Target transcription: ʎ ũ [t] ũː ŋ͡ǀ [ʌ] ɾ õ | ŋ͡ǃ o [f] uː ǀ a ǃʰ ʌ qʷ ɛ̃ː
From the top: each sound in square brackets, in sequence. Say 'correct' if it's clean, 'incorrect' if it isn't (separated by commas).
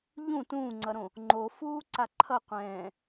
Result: correct, correct, correct